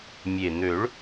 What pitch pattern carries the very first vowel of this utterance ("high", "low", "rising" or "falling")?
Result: low